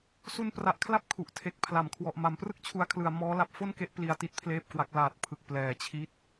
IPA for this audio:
s u˧ n p r a˨˩ ʔ kʰ l a˥˩ p̚ kʰ u˨˩ ʔ tʰ e˨˩ k̚ pʰ l a˩˦ m kʰ w ɔ˨˩ ʔ m a˨˩ m p r ɯ˥˩ k̚ t͡ɕʰ u˧ a̯ kʰ l ɯ˨˩ a̯ m ɔː˦˥ l a˦˥ p̚ f o˥˩ n k e˦˥ ʔ p l i˧ a̯ t i˦˥ t̚ pʰ l eː˥˩ p̚ k w a˦˥ k̚ l aː˨˩ t̚ pʰ ɯ˨˩ k̚ p l ɛː˨˩ t͡ɕʰ i˦˥ t̚

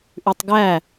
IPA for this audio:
ʔ ʉ tˤ ɡ æ

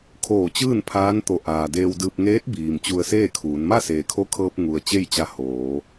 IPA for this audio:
kʰ oː˧˩ t͡ɕ ɯː˥˨ n pʰ aː˧˥ n t̪ o˧˩ ʔ aː˩ d eː˧ w d ɯː˧ p̚ ŋ eː˧˥ t̚ b iː˩ m t͡ɕ u˧ ə̯ s eː˥˨ kʰ uː˩˧ n m a˥˨ s eː˩ kʰ o˧˥ kʰ ɤː˧ p̚ ŋ u˩ ə̯ t͡ɕ e˥˨ j t͡ɕ a˧ h oː˩˧

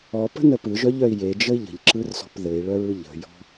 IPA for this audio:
ɔ p ə̤ n ə p ɯ ʒ œ ʎ œ i̯ j e d͡ʒ ə i̯ ʎ ə̤ ʎ ǁ ɯ r s ɔ̤ p ð ɘ i̯ ɭ œ ɹ ɯ ʎ ə̤ j ɔ̤

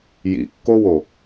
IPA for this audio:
j ḭ kː o w o

